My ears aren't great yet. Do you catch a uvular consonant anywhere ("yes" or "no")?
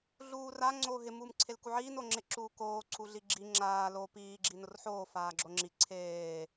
no